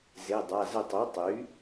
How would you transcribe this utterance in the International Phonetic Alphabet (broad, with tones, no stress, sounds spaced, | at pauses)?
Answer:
z e˩˧˩ dˤ a˩˧˩ z ə˦˨ tˤ u˩˥ tˤ y˩˥